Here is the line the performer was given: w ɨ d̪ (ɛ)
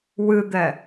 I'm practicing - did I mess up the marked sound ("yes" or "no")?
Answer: no